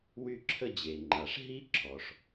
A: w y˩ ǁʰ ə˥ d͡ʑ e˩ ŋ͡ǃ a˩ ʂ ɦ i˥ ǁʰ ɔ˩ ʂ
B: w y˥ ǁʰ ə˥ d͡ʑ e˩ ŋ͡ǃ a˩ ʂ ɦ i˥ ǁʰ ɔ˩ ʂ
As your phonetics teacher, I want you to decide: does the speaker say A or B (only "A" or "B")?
B